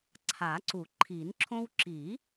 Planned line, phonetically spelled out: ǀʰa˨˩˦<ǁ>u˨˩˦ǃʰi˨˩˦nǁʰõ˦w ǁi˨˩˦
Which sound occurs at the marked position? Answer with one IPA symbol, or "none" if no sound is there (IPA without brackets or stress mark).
ǀ